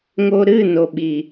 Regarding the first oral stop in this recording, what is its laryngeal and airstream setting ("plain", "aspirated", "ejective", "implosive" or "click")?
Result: implosive